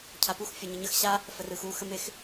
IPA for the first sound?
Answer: cʰ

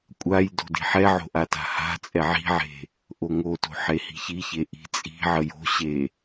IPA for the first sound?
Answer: kʷʼ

